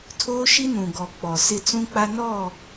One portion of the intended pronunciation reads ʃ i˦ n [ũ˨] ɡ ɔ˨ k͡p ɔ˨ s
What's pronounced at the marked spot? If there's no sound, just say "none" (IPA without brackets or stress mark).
ũ˨